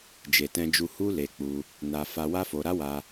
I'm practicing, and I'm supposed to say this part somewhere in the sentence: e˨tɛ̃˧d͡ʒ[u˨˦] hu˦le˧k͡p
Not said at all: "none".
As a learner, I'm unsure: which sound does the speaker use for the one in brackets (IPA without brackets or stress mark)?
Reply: u˧